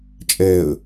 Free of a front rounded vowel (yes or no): yes